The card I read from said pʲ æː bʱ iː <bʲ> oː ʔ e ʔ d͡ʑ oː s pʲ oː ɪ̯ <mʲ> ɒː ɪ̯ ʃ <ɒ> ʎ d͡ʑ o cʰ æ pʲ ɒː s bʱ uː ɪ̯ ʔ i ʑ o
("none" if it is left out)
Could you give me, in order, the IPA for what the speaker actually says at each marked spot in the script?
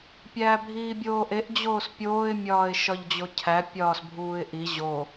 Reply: bʲ, mʲ, ɒ

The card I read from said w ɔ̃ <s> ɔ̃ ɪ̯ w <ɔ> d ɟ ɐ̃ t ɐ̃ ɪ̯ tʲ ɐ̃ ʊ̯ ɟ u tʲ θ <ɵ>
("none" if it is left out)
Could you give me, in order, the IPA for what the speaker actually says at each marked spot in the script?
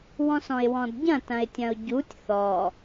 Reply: s, ɔ̃, ɔ

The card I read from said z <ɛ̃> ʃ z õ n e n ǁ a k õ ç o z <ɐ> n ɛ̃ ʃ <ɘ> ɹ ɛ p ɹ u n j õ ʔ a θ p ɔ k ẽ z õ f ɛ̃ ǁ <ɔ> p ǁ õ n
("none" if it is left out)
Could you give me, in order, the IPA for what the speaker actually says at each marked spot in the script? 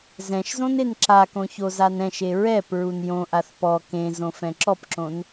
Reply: ɛ̃, a, e, ɔ

